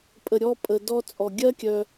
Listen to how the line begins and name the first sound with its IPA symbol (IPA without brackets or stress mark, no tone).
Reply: pʼ